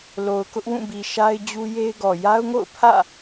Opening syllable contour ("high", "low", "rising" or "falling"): low